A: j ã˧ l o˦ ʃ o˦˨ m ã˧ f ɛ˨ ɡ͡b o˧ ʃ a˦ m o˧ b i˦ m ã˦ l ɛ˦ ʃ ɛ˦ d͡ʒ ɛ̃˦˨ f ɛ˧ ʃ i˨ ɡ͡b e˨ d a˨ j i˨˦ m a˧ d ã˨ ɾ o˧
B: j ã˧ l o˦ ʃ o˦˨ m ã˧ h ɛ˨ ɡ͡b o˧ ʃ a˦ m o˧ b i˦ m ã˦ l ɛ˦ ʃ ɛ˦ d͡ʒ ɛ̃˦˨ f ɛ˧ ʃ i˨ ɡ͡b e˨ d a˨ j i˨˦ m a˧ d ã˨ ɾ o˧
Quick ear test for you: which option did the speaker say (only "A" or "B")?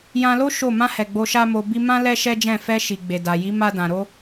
B